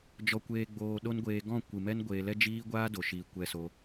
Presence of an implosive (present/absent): present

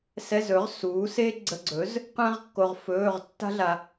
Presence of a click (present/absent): present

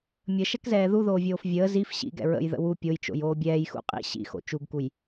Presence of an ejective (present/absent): present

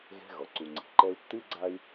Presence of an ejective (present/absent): absent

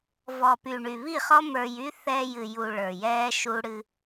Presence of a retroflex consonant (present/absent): present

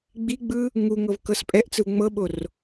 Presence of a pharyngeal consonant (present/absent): absent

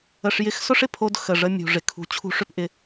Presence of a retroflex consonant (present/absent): present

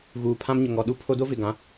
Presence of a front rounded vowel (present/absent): absent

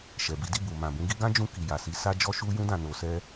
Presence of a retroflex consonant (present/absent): absent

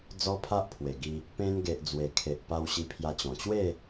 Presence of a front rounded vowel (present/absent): absent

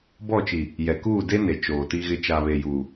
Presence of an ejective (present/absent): absent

